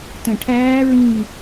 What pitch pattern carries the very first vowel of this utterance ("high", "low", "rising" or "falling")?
falling